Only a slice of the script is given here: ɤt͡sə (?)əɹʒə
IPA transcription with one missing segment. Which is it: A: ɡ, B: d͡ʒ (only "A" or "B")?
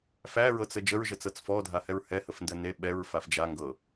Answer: B